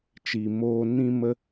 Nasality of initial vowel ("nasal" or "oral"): oral